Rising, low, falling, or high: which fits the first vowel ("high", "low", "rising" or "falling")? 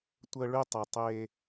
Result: high